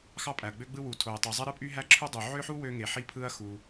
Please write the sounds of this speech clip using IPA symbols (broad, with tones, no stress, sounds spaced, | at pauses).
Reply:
x ɑ˥ pʼ æ˩ ɐ̯ ɡ͡b ø˥ ɡ͡b ɯ˥ w u˩ tʰ o˩ j tˤ y˩ zˤ e˥ ɾ ɯ˥ pʼ y˥ ɦ æ˥ ǁʰ u˥ dˤ y˩ ʕ ø˥ ħ u˥ w ø˥ ŋ e˩ ħ i˥ pʰ ɯ˥ ɐ̯ x u˩